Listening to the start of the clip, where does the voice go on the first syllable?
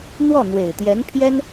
falling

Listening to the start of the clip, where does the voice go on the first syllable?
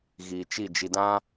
low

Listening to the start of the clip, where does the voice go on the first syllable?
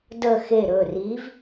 falling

